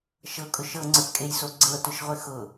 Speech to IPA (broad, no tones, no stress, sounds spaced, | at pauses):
ʃ ɤ kʼ ʊ ʃ ɤ ŋ͡ǀ ə˞ p kʼ e j s o ɡ͡ǀ ɤ t ʊ ʃ ʁʷ ɘ x ʊ